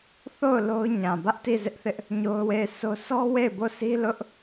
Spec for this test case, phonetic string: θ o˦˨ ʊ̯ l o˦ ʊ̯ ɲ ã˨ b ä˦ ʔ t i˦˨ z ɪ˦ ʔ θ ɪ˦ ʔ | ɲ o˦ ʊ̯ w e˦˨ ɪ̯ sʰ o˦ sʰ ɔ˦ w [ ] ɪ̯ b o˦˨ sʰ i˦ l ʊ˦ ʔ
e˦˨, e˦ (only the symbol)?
e˦˨